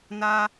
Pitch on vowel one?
high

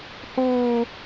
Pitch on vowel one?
high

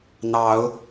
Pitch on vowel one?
rising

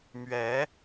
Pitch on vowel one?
rising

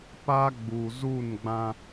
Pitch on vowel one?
high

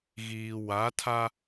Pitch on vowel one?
low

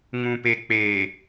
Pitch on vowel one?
low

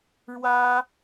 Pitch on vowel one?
high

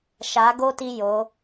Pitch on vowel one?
rising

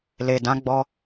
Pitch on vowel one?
low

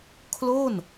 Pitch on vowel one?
falling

